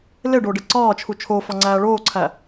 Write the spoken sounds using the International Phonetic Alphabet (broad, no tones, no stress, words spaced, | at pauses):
leɖoɖe ǀɒːt͡ʃʰu t͡ʃʰofɒŋ͡ǀæː ɭoːǀʰæ